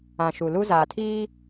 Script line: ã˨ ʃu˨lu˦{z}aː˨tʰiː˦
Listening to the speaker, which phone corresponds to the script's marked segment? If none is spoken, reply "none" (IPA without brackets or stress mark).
z